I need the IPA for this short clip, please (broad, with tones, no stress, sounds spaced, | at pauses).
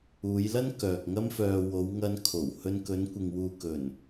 uː˨˧ j l ɐ˥ n k œː˨ k̚ ŋ ɐ˥ m f œː˧ w o˨˧ w ŋ ɐ˧ n kʰ o˨˩ w h ɵ˧ n k ɵ˨˧ n kʷ ɪ˨ ŋ w uː˨ k ɵ˨˩ n